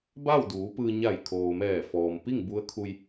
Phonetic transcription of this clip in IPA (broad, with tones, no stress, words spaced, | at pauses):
ba˥˨wduː˩˧pɯː˧ ɲa˧˩jkʰoː˩mɛː˧˩ fɔː˩mpi˥˨ŋbu˧˥ə̯kʰu˧j